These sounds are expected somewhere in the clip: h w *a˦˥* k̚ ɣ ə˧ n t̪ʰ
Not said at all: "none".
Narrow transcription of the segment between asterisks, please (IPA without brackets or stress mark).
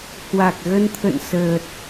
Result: a˨˩